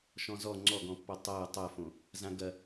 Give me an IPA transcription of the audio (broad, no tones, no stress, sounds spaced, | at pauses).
ʃ ɔ̃ z ɔ ŋ͡ǀ ɔ ɡ ɔ̃ pː ɔ tˤ ɤ tˤ ɤ f õ | z ã ɡ ɐ